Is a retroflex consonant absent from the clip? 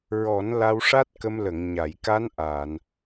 no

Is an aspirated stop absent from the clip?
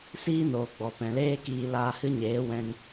yes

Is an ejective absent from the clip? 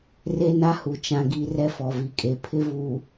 no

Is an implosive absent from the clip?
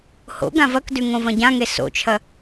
yes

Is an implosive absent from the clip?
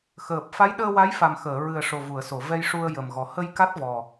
no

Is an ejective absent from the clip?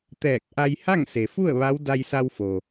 yes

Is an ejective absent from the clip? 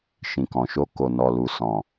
yes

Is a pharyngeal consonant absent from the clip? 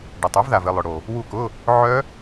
no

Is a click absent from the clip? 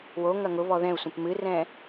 yes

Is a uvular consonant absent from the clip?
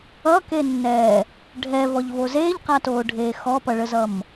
no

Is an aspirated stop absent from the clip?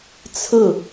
no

